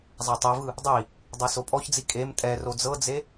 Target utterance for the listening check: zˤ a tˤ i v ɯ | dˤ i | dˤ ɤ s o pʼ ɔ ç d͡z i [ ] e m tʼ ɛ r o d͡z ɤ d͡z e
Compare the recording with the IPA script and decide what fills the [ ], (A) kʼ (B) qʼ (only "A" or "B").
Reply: A